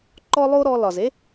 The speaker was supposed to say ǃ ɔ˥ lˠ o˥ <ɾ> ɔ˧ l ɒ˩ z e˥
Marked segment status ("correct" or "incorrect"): correct